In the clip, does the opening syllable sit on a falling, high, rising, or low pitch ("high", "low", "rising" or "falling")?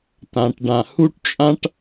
low